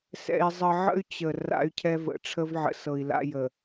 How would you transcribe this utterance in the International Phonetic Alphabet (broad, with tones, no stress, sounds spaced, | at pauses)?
s ɛ̰˦ i̯ zˤ ə˦ ʕ ə̰˦ y̯ t͡ɕ ə˨ r a̰˦ y̯ cʰ ɛ˦ v ə̰˨ ʈ͡ʂʰ ə˦ v ʕ ə̰˨ s ɤ˨ i̯ l a̰˦ j ə˨